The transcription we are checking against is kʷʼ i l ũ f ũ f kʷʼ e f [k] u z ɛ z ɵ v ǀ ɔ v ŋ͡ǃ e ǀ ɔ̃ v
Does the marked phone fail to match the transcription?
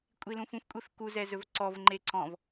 no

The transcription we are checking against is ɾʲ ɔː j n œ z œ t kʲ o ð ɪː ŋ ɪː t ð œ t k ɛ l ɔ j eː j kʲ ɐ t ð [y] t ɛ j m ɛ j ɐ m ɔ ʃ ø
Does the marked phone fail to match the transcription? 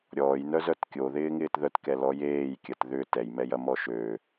yes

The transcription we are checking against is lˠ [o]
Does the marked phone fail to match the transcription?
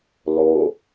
no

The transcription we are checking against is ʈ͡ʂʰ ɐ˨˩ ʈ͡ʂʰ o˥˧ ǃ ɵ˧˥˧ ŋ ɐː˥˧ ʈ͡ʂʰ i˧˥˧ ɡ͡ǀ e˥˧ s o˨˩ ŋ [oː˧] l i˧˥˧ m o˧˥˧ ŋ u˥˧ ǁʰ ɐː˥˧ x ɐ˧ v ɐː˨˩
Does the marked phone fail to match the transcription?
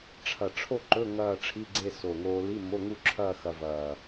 no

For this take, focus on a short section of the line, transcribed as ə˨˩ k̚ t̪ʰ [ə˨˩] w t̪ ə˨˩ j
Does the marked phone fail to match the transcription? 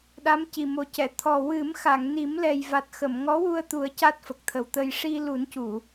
no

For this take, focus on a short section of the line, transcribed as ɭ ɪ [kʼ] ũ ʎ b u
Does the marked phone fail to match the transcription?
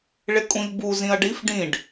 no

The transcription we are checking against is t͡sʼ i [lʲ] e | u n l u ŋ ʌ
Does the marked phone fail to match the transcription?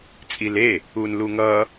yes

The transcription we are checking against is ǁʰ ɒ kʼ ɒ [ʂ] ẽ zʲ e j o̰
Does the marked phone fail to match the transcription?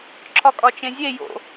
yes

